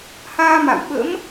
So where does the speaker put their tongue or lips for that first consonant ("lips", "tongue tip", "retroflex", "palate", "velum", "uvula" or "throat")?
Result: throat